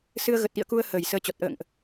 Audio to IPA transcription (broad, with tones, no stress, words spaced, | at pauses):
sɨ˧ə̯ɣə˨˩t̚ʔḭ˧˨ə̯ku˧ə̯ həː˧˩jsəː˧t͡ɕɔ˨˩t̚ ʔə̰ː˧˨ŋʔ